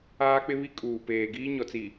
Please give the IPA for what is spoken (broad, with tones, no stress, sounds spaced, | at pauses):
aː˦ k͡p ɪ˦ β i˦ kʼ uː˨ p eː˨ ɡ iː˦ ɲ ɔ˨ t͡s i˨